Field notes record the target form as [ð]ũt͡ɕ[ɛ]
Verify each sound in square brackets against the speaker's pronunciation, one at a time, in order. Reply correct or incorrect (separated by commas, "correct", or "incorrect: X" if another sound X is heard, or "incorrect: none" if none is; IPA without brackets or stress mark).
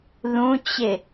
correct, incorrect: ɪ